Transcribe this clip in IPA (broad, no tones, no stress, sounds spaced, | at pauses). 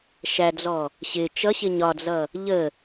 ʃ æ d͡z ɔ | ɕ ɪ t͡ʃ ʌ ɕ ɪ ɲ ɒ d͡z ʌ | ʎ ə